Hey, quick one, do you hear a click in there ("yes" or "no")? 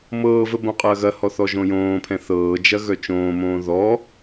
no